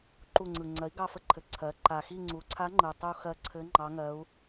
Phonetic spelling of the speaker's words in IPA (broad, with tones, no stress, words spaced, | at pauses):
ǃu˦˨ŋ͡ǀɯ˨˩ ŋ͡ǀɜ˩˥i̯ɡɑ˦˨fə˦˨ǃʰɘ˨˩ ǀʰɜ˩˥ ǃa˨˩ xi˦˨ŋ͡ǀu˩˥ǀʰa˧˥ŋ͡ǃɯ˨˩ tˤu˦˨ xɜ˦˨ǀʰɘ˧˥ ŋ͡ǃɑ˧˥ŋɜ˧˥u̯